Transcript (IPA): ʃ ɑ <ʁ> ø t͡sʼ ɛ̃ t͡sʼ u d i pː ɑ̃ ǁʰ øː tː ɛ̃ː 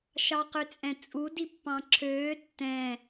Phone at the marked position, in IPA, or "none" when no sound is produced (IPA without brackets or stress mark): q